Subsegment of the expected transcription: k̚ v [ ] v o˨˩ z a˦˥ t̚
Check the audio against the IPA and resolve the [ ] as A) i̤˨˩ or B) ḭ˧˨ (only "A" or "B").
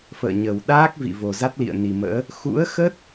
B